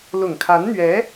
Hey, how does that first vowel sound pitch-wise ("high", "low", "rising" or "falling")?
low